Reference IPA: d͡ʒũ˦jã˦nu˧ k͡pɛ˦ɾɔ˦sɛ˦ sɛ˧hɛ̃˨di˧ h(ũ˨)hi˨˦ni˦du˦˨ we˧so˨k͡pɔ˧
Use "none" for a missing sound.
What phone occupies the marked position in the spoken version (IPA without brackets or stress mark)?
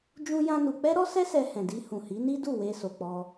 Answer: ũ˨